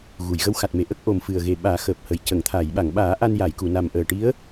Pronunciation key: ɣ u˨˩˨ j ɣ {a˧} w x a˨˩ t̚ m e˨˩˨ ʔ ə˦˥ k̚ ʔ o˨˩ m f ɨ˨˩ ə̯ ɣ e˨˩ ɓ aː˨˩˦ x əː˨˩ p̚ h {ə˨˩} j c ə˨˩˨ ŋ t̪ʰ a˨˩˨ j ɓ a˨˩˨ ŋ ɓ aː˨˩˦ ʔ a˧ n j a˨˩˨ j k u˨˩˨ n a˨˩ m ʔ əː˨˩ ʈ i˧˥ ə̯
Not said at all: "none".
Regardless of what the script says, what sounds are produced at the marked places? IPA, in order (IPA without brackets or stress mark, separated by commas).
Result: ə˧, ə˨˩